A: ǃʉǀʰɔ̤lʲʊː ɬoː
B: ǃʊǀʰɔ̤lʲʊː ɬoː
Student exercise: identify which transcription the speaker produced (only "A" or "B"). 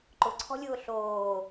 B